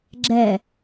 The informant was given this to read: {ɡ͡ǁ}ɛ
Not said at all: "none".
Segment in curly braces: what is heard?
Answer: ɡ͡ǁ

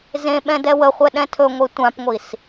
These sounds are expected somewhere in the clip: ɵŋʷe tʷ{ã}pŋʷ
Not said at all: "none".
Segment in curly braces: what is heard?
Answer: ã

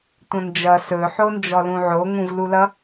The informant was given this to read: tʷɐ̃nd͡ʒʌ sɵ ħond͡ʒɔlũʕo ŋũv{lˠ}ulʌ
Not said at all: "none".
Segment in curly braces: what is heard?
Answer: l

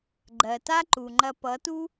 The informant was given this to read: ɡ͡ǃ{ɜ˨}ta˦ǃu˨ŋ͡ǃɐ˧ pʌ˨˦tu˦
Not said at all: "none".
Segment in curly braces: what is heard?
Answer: ɜ˨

